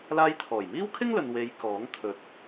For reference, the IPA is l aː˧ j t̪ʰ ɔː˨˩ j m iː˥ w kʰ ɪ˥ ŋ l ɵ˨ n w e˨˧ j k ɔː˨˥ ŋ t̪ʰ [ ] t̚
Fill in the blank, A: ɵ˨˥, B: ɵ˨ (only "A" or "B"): B